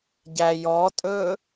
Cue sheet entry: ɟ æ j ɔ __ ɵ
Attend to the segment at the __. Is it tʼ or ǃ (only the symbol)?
tʼ